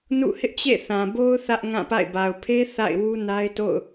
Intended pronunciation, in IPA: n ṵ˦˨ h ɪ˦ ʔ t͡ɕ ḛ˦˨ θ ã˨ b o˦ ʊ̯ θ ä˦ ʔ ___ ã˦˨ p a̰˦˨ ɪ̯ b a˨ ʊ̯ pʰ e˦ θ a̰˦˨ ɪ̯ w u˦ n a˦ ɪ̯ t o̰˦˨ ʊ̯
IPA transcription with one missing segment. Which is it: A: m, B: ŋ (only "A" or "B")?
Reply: B